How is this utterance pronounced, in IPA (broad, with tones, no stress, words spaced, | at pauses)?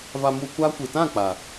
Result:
va˧mu˧kʷaː˦kʷɨ˨ tã˦˨k͡pa˨